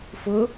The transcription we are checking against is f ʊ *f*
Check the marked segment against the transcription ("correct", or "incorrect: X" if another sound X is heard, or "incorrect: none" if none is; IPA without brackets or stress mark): incorrect: none